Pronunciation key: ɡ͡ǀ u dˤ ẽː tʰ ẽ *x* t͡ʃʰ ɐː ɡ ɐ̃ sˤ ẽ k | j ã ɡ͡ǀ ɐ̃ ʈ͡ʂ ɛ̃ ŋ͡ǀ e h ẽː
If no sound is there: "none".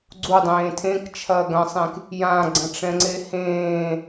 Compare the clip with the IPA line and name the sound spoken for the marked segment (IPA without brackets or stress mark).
k